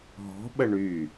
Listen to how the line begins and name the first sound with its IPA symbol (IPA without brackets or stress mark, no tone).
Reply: ɦ